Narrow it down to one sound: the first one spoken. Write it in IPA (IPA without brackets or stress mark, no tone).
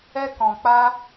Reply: ɛ